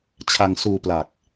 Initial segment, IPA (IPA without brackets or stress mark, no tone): t͡ɕʰ